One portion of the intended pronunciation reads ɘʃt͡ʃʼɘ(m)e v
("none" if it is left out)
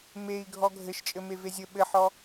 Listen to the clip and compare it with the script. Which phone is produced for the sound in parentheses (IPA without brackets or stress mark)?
m